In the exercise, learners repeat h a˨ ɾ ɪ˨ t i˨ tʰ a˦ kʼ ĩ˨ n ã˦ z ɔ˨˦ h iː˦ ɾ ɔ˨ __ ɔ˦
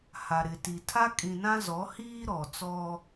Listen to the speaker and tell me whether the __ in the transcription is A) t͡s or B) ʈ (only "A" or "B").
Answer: A